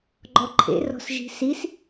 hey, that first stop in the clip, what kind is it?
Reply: click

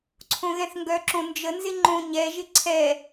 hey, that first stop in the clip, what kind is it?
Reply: click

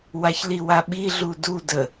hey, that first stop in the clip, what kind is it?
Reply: implosive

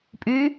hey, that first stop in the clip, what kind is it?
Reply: ejective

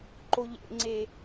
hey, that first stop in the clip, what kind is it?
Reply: click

